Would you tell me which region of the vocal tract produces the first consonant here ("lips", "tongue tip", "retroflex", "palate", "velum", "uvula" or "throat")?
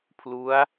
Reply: lips